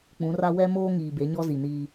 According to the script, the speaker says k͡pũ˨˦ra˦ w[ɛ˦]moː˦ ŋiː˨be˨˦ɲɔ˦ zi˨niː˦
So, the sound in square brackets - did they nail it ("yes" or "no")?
yes